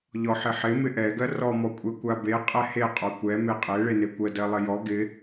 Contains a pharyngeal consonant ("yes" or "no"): yes